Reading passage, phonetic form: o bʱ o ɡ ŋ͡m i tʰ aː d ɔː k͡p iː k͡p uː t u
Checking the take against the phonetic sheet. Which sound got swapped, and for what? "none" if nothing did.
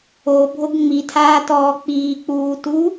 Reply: d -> t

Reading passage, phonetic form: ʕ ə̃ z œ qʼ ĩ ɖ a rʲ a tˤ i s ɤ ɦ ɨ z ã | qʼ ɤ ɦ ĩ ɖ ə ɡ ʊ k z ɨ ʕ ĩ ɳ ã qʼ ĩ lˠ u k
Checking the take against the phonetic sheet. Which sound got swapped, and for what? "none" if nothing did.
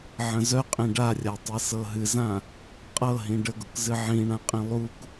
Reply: none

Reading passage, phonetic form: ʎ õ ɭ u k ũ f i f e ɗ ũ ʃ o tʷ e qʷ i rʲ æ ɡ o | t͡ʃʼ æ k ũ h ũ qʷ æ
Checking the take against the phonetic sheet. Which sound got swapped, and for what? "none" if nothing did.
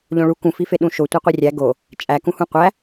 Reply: none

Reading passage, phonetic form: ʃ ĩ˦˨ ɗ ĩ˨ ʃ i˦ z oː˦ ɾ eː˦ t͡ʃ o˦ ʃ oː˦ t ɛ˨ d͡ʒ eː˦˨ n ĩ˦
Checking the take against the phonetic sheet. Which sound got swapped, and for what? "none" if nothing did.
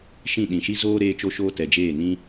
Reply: none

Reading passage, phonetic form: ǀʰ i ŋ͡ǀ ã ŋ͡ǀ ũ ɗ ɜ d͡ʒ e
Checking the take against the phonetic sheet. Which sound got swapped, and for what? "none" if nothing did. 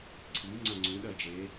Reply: none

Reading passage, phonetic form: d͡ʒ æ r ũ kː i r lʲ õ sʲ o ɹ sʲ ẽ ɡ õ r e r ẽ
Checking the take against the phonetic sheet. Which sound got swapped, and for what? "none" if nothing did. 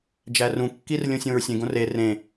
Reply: o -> õ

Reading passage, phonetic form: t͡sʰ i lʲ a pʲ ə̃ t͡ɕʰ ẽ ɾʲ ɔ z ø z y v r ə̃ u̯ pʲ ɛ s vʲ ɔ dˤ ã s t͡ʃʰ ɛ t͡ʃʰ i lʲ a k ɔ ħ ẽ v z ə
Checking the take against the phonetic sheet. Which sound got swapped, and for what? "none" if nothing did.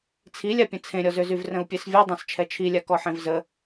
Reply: t͡ɕʰ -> t͡sʰ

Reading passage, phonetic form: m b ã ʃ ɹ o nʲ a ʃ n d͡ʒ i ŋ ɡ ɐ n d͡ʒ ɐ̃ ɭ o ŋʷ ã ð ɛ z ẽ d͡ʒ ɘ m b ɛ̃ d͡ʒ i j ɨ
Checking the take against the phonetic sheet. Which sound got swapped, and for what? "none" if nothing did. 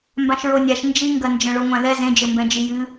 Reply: none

